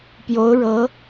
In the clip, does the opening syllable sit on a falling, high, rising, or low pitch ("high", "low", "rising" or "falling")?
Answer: rising